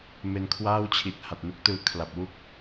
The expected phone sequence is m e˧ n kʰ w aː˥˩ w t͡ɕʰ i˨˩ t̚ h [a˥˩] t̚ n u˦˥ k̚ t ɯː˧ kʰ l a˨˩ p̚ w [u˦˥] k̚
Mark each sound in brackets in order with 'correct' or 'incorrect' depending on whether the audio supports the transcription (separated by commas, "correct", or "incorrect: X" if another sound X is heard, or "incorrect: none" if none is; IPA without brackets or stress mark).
incorrect: a˨˩, incorrect: u˥˩